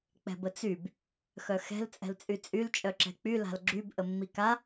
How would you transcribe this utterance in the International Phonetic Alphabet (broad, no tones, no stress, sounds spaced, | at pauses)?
k͡p ɛ̤ b ə t͡s y b | x œ x ɛ̤ l t͡sʼ ɛ̤ l t͡sʼ y t͡sʼ y l t͡ʃʼ œ ǁ ɛ̤ k͡p y l a̤ l ɡ͡ǁ y b ʔ ə mː i k a